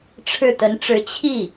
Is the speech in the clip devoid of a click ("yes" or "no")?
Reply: yes